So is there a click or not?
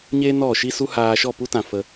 no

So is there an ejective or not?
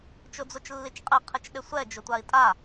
yes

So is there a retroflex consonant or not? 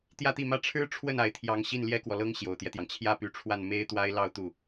yes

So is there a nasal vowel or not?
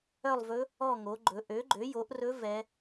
no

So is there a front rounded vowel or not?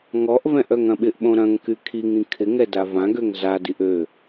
yes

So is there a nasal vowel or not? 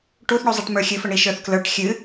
no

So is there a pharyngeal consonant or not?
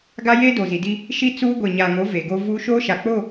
no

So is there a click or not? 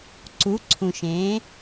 yes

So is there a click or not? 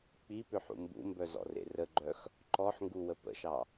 yes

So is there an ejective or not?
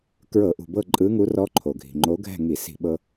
yes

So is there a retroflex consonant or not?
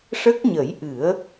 yes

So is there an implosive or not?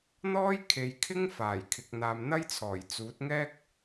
no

